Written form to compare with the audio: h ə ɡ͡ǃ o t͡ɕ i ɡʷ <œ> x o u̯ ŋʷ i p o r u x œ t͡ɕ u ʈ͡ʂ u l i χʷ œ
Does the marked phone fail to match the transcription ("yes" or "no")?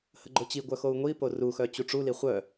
no